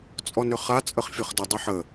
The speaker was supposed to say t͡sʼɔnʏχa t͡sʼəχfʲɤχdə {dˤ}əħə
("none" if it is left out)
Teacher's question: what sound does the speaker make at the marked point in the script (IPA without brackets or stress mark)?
dˤ